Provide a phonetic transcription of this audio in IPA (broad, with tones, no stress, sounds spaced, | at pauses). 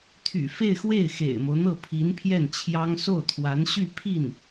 t̪ʰ y̰˨˩ f e˥˧ ɪ̯ x w e˥˩ ɪ̯ x ḛ˨˩ ɪ̯ m o˦ ʊ̯ n̪ ɤ˥˩ pʰ i˧˥ n pʰ j ɛ˥˩ n t͡ɕʰ j ɑ˥ ŋ s o˥˩ ʊ̯ t̪ʰ w a˧˥ n ɕ y˥˧ pʰ i˥˩ n